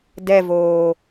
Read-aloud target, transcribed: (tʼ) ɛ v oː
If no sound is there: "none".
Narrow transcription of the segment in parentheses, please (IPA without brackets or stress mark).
d